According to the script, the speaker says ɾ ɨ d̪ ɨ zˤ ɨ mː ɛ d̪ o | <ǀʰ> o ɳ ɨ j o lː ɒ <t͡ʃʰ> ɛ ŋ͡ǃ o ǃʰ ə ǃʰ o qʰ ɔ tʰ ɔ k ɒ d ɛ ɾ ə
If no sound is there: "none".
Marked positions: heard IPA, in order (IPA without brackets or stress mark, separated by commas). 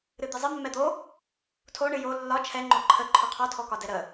tʰ, t͡ʃʰ